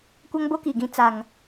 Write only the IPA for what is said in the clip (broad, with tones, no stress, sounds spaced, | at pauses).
kʷ a˦ ŋ b o˦ k i˨ ɡ ĩ˦ t͡s a˦ ŋ